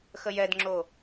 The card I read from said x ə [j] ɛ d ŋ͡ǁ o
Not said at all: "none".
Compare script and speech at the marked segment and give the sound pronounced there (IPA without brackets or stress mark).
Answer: j